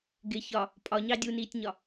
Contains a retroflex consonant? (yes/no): no